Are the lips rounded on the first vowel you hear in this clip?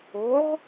yes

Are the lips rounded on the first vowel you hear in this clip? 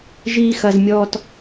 no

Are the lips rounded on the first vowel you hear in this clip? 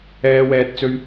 no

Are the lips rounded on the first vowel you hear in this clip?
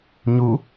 yes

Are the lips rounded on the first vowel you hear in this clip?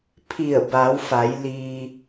no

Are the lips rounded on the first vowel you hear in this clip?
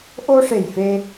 yes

